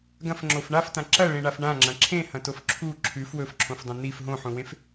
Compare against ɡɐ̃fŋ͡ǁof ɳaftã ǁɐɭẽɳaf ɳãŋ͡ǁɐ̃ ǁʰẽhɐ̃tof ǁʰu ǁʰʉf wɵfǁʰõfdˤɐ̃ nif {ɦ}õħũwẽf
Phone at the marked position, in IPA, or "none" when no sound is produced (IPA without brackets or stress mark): ɦ